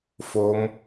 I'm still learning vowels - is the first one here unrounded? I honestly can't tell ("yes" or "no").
no